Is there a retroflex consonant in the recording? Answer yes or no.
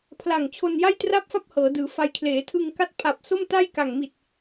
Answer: no